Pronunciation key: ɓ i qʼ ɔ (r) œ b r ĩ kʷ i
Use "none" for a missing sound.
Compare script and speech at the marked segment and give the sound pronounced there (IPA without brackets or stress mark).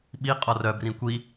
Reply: r